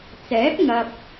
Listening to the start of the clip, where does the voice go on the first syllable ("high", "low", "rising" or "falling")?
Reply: rising